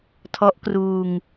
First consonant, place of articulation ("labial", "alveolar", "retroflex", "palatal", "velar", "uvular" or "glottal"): alveolar